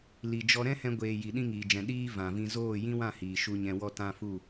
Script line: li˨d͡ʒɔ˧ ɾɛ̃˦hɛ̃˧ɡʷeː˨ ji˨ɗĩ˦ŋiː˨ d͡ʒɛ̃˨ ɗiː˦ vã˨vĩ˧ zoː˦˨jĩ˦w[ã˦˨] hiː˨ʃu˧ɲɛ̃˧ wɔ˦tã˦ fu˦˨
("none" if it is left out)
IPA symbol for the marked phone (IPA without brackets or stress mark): ã˦˨